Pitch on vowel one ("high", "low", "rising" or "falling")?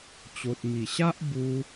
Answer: low